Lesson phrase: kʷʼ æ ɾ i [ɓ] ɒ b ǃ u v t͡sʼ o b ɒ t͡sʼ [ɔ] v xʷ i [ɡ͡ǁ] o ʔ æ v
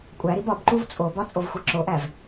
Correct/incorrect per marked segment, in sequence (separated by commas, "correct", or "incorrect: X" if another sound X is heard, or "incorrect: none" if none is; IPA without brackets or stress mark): incorrect: b, incorrect: o, incorrect: ǁ